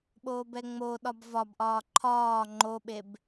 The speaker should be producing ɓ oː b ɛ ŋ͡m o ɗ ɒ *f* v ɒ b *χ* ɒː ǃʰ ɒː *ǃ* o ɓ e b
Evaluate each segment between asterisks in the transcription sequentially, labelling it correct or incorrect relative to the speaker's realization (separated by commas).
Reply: incorrect, incorrect, incorrect